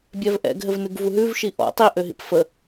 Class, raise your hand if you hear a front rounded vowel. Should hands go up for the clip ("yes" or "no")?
yes